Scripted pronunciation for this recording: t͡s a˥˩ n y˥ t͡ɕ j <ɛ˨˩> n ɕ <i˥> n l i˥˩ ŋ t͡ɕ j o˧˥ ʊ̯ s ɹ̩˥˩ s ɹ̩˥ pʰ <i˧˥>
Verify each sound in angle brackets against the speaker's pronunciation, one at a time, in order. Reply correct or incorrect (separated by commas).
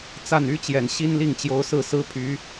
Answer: correct, correct, incorrect